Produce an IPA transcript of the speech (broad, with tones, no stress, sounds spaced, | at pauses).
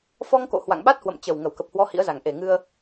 f ɔ˧ ŋ k o̰˧˨ h w a̰˧˨ ŋ ɓ a˦˥ t̚ h w ə̰˧˨ m t͡ɕ ə˨˩ w ŋ ə˧˩ w k ə˨˩ p̚ h w ɔ˧ h ḭ˧˥ ə̯ z a˨˩ ŋ ʔ e˨˩ ŋ ɨ˧ ə̯